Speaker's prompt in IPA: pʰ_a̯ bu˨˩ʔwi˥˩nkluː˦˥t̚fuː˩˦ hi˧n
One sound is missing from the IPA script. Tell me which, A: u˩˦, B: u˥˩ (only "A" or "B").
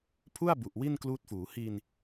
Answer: B